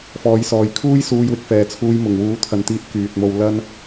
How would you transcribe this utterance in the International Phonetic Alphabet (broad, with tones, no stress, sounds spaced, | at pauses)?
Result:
f ɔː˨˥ j s ɔː˨ j kʰ uː˥ j s uː˧ j w ɪ˧ k̚ f ɛː˨ t͡sʰ uː˧ j m ʊ˨˩ ŋ w uː˨˥ t̪ʰ ɐ˨ n t̪ iː˨˥ t̚ k yː˨ t̚ m o˧ w l ɐ˥ n